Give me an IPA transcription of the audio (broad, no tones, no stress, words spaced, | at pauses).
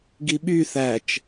ɡiɓy θæt͡ʃ